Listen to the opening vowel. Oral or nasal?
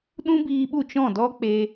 nasal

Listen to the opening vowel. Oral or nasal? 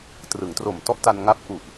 oral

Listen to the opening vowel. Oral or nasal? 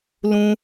nasal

